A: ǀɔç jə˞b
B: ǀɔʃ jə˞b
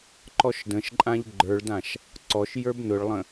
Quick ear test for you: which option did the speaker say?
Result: B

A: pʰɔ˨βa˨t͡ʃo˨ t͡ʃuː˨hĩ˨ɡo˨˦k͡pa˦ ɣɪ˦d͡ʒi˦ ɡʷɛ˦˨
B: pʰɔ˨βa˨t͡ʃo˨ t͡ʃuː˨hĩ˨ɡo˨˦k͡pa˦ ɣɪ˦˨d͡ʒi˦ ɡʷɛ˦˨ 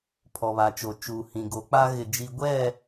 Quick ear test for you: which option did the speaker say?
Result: B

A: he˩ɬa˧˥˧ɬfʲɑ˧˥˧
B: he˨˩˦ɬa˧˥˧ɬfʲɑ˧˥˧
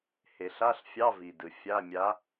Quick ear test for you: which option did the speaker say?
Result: B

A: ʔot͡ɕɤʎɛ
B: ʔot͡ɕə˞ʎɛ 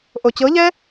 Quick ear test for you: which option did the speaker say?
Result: A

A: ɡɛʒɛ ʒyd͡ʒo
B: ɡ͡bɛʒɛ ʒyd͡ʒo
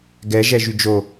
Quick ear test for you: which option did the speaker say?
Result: A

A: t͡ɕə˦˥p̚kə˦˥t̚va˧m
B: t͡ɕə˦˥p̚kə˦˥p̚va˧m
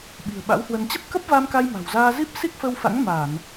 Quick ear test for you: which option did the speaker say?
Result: B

